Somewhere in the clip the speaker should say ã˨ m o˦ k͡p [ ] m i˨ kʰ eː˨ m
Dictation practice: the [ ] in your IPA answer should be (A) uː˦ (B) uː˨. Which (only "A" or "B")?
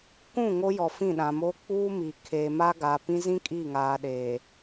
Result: A